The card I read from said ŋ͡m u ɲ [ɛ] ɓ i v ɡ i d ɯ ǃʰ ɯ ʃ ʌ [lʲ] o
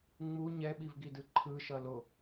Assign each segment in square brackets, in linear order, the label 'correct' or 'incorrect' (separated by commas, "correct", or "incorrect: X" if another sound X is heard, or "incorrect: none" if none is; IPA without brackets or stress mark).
correct, incorrect: l